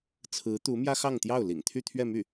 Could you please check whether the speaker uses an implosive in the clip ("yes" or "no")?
no